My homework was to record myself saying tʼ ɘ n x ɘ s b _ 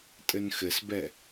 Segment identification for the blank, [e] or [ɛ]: ɛ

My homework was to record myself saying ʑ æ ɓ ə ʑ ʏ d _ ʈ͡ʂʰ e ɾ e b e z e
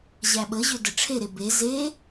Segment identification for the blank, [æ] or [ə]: ə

